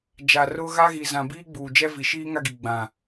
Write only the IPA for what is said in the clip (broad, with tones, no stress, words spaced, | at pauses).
d͡ʒa˨rʊ˦ ɣa˦ɣi˨zã˨ biː˦ɡ͡buː˨d͡ʒɛ˦vi˨ ʃiː˦ŋa˦ɡi˨ ɡ͡bã˨